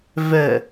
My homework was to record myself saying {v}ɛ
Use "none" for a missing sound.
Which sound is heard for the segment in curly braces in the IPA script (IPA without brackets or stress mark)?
v